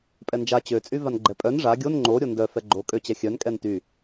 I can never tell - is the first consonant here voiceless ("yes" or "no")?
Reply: yes